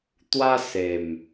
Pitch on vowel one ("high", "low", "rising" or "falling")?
high